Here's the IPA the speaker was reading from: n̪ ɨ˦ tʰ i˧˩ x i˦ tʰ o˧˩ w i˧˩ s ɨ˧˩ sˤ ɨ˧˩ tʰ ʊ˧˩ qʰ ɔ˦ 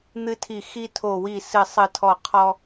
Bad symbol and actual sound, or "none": ʊ˧˩ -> ɔ˧˩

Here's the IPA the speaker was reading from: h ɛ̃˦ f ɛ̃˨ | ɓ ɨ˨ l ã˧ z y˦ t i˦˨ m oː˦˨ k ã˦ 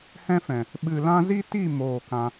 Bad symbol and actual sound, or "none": y˦ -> i˦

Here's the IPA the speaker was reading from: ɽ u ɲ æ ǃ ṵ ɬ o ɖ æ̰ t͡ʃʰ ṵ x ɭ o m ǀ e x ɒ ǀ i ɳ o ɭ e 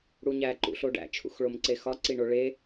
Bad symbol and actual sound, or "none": none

